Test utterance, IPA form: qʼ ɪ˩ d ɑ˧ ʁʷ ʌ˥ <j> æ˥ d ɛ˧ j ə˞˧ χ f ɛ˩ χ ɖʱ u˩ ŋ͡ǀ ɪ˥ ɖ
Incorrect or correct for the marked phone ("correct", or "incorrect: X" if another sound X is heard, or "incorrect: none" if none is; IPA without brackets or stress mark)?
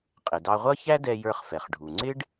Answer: incorrect: ç